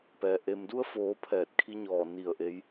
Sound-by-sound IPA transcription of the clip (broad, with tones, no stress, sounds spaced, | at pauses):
p ɛː˩ ʔ e˩ m d u˧ ə̯ f oː˩˧ pʰ ɛː˧˩ t̚ kʰ i˧˥ ɲ ɔː˧˩ n i˧˩ ə̯ ʔ e˧˥ j